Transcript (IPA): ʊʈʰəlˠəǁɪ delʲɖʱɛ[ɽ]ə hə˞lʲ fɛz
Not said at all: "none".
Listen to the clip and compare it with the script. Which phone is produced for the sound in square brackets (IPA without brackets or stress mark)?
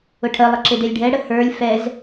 ɽ